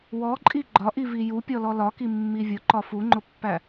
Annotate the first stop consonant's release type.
click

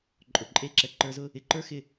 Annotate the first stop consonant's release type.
click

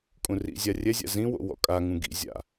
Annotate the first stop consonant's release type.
ejective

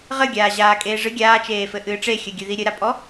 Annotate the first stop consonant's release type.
plain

